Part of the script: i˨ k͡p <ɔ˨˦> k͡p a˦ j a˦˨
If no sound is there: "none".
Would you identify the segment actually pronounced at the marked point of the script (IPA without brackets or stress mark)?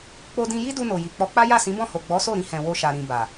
ɔ˨˦